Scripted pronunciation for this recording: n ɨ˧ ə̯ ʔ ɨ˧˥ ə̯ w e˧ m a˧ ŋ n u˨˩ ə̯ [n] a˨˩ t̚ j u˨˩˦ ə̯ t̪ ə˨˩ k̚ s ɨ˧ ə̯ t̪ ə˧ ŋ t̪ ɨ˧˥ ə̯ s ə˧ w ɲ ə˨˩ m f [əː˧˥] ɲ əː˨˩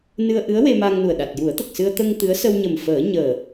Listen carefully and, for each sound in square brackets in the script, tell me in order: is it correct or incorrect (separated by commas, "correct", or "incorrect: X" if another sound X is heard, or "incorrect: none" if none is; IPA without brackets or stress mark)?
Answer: incorrect: ɗ, incorrect: əː˨˩˦